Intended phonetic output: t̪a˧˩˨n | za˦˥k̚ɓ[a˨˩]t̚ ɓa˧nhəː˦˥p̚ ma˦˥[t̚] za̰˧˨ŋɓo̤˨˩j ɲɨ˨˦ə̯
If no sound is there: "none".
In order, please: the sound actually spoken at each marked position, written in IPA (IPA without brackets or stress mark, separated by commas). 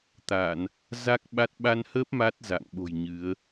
a˦˥, t̚